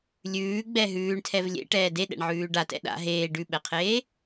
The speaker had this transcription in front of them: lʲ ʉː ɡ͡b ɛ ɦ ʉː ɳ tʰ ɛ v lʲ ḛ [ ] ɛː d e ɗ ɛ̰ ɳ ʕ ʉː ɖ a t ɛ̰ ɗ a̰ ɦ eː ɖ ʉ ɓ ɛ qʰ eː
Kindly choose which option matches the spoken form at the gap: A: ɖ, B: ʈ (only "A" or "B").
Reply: B